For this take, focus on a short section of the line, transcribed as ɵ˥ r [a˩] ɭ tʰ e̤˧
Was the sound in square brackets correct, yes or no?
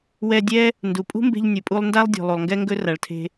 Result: yes